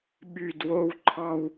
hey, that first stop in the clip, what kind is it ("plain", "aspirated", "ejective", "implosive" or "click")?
implosive